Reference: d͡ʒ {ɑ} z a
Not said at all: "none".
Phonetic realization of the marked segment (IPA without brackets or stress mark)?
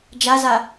a